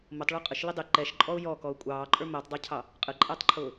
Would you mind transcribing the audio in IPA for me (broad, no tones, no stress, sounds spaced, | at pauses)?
m ʊ tˤ ɭ ʊː qʼ ə ʃ l ɪ dˤ ɪ ǃ ɛ ʃ ǃʼ ɔ ʊ̯ j ɔ k ɔ ʊ̯ kʷʼ ɑː ǃʼ ə˞ m ɛ tˤ dˤ ə˞ cʰ ɑ | qʼ ə ǃʼ æ tˤ ǃʰ ʊː